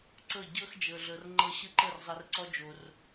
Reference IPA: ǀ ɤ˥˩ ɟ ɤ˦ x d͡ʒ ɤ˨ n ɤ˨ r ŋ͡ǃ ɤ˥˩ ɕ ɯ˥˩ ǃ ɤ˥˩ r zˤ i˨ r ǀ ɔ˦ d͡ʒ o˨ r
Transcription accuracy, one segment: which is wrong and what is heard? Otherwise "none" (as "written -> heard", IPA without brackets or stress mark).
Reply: n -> ɮ